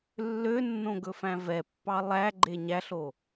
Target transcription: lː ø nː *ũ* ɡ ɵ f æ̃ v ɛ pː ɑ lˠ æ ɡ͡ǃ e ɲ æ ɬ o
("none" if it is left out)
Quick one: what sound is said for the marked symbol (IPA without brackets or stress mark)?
õ